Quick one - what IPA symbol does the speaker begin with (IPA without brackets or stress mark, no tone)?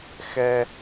x